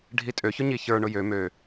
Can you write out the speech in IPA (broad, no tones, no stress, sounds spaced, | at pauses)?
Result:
ɖʱ i tʼ ø ç ʊ ɲ i ç ə˞ ɳ ʊ j ø m ø